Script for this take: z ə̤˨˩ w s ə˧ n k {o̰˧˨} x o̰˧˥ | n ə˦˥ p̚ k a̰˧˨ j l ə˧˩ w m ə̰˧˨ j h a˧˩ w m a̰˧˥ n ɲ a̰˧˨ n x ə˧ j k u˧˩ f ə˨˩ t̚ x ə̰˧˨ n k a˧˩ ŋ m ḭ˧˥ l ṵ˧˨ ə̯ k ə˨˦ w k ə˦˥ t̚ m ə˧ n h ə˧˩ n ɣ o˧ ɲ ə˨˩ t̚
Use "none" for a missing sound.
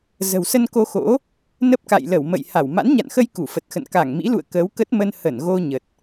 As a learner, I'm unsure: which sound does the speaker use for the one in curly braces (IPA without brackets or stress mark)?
o˧